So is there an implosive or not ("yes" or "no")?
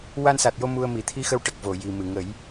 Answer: no